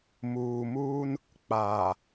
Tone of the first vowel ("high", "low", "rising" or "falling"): low